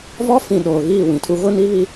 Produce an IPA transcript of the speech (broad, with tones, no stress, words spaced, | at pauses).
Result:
vɔ˦ fĩ˨ ɗoː˨ɣiː˦˨wĩ˨tʰu˦ ɣʊ˦ ni˦ βi˦